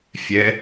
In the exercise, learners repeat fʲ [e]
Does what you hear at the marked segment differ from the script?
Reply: yes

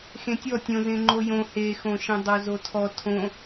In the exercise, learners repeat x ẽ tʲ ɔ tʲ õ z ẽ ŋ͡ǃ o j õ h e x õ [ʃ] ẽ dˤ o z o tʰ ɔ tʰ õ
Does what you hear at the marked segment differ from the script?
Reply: no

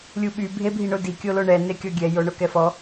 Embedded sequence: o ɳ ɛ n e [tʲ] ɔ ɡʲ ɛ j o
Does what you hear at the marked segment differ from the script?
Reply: yes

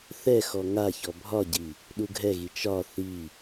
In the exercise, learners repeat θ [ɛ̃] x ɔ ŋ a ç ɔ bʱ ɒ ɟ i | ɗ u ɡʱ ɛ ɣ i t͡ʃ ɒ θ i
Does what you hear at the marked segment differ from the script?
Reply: yes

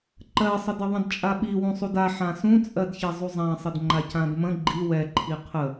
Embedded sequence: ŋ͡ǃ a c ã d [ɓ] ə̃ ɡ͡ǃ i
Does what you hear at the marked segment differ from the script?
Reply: yes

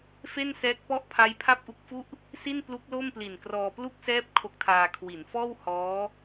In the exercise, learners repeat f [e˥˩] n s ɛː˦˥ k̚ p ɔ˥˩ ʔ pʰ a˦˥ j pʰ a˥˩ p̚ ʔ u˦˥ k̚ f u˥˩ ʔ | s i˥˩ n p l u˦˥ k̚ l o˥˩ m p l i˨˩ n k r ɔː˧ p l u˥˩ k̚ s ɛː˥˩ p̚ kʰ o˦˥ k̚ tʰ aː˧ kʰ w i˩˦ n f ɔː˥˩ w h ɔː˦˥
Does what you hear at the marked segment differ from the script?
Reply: no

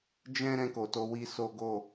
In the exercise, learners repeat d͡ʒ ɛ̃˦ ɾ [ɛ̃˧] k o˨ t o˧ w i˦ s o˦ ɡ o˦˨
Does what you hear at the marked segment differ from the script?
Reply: no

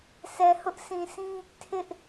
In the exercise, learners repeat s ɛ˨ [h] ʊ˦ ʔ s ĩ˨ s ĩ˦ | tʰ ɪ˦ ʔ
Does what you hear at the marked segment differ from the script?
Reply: no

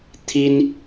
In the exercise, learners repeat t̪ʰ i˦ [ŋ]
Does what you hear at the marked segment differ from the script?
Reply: yes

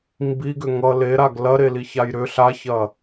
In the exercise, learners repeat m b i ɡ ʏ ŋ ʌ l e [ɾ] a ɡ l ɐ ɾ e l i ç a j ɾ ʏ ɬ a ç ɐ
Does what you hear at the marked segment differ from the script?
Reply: no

